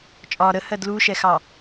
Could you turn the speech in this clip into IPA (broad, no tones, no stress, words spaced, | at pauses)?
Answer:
t͡ʃʼɒ ɾəhɜ dluʃɛxɑ